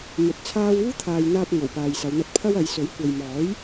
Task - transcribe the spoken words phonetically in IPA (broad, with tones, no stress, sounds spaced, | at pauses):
m ɵ˨ t̚ t͡sʰ aː˥ w uː˥ t̪ʰ aː˨ j n̪ aː˧ p̚ ŋ o˨˩ w p aː˨ j s ɐ˨˧ w n̪ ɐ˧ t̚ pʰ ɐ˥ w ɐ˨˧ j s ɵ˨˥ ɥ kʷ ɐ˨ j m ɔː˨˥ j